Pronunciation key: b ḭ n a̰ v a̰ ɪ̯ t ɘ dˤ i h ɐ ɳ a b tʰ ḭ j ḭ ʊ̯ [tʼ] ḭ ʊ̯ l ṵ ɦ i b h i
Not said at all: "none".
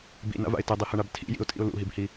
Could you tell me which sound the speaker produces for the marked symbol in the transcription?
tʼ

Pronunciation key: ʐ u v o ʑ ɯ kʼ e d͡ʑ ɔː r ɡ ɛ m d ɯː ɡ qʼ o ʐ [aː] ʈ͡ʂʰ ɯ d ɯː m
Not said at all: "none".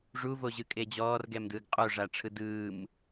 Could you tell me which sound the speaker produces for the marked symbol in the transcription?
a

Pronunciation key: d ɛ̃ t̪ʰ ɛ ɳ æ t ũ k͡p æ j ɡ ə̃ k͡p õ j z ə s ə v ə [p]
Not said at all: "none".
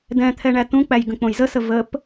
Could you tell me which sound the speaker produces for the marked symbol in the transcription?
p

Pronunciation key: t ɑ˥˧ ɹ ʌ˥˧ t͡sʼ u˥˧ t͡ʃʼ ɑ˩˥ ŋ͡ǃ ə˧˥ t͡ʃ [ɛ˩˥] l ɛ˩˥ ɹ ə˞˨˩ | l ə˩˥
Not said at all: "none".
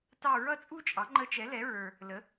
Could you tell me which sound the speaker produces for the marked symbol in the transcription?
ɛ˩˥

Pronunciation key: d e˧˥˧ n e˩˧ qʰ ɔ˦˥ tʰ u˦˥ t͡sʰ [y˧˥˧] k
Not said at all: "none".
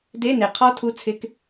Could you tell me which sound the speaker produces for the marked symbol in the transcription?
ɪ˧˥˧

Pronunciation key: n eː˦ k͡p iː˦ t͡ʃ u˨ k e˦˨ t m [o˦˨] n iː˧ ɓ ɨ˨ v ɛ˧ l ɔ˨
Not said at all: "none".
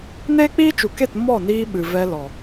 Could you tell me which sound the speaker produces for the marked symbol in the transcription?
ɔ˦˨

